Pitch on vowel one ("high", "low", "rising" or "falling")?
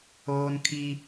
high